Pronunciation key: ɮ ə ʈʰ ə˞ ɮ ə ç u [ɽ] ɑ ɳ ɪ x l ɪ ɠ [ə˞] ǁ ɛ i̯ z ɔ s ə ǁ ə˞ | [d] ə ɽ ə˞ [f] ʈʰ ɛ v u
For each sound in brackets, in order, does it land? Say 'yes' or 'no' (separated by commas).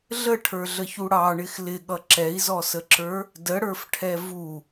yes, no, yes, yes